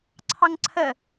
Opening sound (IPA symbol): ǀʰ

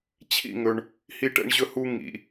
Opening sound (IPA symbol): t͡ɕʰ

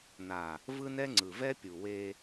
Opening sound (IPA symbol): n̪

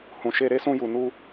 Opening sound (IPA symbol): h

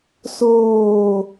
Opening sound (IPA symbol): s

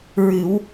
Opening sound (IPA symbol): ɹ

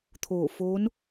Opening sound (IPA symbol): t̪ʰ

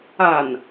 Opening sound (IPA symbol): a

